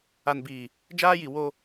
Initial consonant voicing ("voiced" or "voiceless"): voiced